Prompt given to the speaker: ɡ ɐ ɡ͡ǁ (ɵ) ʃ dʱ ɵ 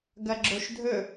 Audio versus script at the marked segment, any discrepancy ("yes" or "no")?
yes